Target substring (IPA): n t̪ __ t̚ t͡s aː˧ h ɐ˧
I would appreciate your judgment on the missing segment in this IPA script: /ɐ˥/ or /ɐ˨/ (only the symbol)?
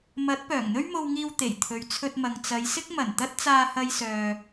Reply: ɐ˥